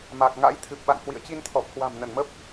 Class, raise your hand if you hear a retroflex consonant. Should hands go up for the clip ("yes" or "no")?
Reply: no